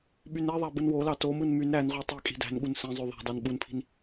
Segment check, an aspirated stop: present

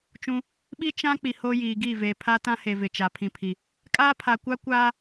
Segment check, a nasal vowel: present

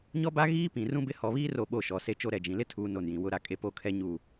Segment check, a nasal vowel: present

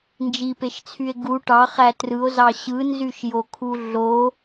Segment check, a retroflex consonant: present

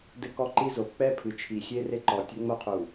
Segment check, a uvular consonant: present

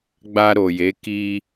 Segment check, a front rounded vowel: absent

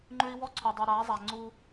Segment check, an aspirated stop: present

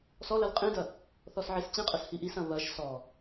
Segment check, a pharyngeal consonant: present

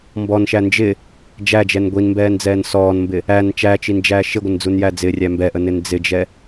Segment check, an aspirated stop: absent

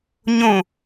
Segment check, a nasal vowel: present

